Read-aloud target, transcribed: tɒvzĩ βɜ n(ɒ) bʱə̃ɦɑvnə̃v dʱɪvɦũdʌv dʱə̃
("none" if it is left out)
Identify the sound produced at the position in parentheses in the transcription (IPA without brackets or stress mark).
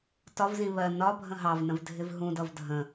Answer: ɒ